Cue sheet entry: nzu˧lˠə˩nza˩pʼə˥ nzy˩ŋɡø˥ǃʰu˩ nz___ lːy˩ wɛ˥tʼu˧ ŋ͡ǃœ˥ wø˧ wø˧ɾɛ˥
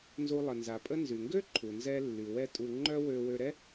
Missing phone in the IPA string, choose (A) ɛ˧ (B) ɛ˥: A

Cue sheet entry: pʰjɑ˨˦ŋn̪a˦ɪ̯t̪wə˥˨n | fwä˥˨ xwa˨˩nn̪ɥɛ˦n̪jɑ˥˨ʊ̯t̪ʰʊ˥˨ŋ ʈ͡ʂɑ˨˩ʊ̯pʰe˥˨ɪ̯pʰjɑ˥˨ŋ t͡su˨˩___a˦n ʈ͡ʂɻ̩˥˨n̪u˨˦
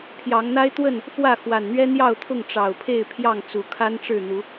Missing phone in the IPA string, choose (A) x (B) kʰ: B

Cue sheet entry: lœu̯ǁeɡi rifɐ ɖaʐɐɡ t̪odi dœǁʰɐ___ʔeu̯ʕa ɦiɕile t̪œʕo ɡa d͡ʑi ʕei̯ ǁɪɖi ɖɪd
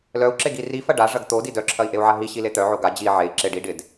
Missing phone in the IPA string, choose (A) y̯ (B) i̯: B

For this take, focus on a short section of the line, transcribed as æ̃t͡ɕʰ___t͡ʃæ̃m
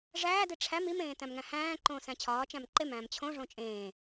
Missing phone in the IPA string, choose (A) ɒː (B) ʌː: A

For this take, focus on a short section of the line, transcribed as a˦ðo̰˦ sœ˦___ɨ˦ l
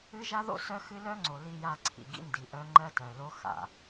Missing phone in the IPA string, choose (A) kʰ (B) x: B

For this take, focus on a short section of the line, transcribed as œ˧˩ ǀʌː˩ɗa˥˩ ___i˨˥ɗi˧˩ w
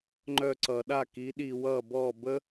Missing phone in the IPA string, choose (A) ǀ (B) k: B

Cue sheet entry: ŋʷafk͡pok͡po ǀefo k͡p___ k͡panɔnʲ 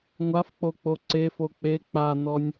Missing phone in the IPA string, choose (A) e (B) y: A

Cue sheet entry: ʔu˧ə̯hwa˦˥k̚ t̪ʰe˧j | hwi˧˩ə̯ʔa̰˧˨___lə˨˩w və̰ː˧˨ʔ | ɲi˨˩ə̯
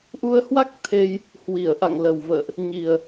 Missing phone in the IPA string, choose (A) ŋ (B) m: A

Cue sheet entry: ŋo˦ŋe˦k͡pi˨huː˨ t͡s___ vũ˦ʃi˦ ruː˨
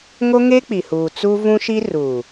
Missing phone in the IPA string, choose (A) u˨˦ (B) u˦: B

